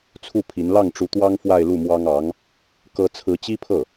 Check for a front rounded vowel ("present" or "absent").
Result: absent